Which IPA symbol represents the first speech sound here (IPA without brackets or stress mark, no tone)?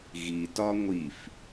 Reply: ɣ